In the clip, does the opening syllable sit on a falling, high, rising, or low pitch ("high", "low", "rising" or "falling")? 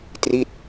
falling